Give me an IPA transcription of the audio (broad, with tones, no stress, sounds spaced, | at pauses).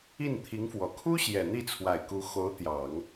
i˥˩ n t̪ʰ i˧˥ ŋ f w ɔ˨˩ kʰ u˥ ɕ j ɛ˨˩ n̪ i˥˩ t͡sʰ w a˨˩ ɪ̯ k u˧˥ x o˧˥ ʊ̯ t̪ j ɑ˨˩˦ ŋ